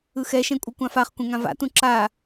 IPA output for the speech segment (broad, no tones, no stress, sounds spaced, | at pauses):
ɯ x ɛ ʃ ɛ̃ kʷʼ ɯ kʷ ã f a χ kʷ ẽ ŋ ã v a̰ t ũ ǁ a